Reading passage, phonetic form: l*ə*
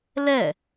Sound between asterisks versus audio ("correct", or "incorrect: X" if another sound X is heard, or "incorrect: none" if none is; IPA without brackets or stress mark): incorrect: ɛ